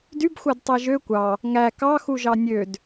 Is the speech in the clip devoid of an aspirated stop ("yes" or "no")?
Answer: yes